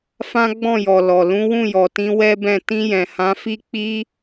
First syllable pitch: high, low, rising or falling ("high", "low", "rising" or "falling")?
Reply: high